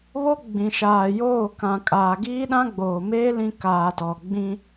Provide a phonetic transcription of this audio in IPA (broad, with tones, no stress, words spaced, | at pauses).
βo˦ ɡ͡bĩ˨ ʃaː˨joː˦˨ kã˨kʼaː˨ ɡiː˦ɗã˦ɡ͡boː˨meː˦ lĩ˦ kaː˨tɔ˨ ɡ͡bĩ˦